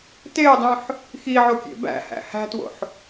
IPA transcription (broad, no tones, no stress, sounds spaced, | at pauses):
t e o̯ dˤ ũ ħ | x i ʕ o kʲ ḛ b æ̰ h æ̰ h æ̤ t w o̰ ħ